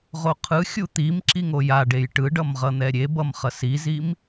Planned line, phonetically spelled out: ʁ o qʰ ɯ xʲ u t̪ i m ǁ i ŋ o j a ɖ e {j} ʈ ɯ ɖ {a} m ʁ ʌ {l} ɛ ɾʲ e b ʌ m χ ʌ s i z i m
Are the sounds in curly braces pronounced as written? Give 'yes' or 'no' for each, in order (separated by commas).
yes, no, no